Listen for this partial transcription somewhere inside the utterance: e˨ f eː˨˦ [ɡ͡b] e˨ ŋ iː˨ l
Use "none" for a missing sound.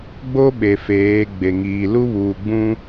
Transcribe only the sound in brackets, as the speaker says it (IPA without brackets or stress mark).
ɡ͡b